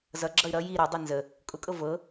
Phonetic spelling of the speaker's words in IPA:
z ʌ ɡ͡ǁ ʌ y̯ ɾ ʌ j i ɾ ʌ dˤ ɤ n z ə | kʼ ʊ kʼ ɤ v ɤ

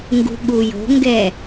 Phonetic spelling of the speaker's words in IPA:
ŋ ɡ ṳ ɠ u j o̤ ŋ ɡ ɛ

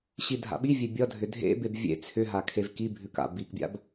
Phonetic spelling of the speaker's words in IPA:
ɕ i dʱ a̰ ɓ i vʲ e bʲ ʌ dʱ ʏ dʱ ḛ b e b vʲ ḛ t͡sʰ ʏ ɦ a kʰ e v k i bʱ ʉ k a̰ b i k bʲ a̰ b

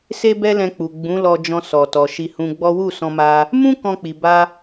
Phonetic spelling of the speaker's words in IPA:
s e˦ b ɛ˦ l ɛ̃˧ k͡p u˨ ɡ͡b ũ˨˦ l ɔ˧ d͡ʒ ɔ̃˧ s ɔ˨ t ɔ˨ ʃ i˧ h ũ˧ ɡ͡b ɔ˦ w u˦˨ s ɔ̃˧ m a˧ | m ũ˦ k ɔ̃˧ k͡p i˨ b a˧

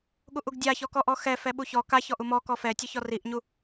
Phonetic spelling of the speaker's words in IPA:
ɠ u ʔ u ɡ dʲ a ç ɔ k ɔ ʔ ɔ x ɛ f ɛ ɓ u ç ɔ k a ç ɔ ʔ u m ɔ k ɔ f ɛ tʲ ʊ ç ɔ r i ʔ ɲ u

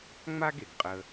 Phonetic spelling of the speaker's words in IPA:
ŋ͡m a˥ ɡ e˩ ɡ qʼ ə˧

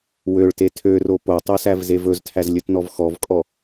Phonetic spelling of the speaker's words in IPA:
w ø ɭ t e tʰ ø r o p o tˤ ø s æ v z e v ɵ z tʰ æ z lʲ ɵ t n ɔ v x ɔ v kʼ ɔ

